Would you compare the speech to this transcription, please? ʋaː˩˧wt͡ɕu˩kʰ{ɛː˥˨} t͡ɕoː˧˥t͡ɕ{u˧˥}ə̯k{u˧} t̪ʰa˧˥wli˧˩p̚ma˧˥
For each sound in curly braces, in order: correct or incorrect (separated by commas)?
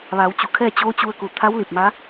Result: correct, incorrect, incorrect